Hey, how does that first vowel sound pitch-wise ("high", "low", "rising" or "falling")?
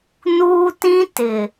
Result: high